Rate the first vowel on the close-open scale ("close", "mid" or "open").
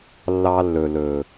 open